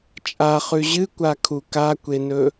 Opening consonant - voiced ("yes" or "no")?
no